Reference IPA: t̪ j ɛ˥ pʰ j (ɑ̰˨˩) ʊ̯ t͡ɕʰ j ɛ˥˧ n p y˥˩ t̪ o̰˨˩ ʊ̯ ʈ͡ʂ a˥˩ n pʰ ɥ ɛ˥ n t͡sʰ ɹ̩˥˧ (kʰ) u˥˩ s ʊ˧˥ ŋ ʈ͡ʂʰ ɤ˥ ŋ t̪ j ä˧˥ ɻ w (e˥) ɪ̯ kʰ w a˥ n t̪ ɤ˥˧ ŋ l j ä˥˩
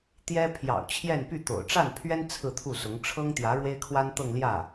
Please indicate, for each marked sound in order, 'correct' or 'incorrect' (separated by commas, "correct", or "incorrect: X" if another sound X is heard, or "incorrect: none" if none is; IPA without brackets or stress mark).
correct, incorrect: t̪ʰ, correct